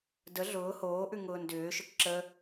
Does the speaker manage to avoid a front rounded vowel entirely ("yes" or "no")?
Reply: no